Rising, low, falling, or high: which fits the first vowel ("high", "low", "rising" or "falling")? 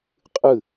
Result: falling